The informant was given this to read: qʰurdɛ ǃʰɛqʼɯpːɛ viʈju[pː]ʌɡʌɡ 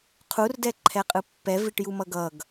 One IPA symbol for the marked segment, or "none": m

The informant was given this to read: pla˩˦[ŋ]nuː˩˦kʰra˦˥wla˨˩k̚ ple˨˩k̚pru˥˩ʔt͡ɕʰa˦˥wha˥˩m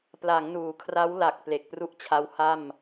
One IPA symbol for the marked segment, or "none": ŋ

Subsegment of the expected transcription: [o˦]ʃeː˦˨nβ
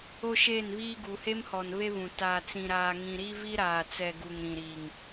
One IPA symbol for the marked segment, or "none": o˦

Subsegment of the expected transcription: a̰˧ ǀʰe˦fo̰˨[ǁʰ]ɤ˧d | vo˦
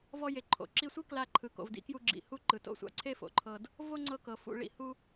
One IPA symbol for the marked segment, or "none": ǃʰ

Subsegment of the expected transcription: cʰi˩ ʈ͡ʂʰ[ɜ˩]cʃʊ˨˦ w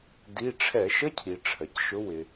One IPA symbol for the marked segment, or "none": ɜ˩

